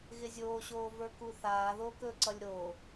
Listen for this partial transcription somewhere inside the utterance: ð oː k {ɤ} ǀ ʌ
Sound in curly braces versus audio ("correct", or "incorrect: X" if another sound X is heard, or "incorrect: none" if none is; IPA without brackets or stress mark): incorrect: ɵ